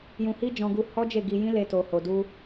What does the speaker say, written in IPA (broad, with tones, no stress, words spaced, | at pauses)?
jũ˧hi˦d͡ʒɔ̃˧ɡu˧ hɔ˦d͡ʒe˦˨ɡi˧jĩ˦ le˧to˨ho˨du˧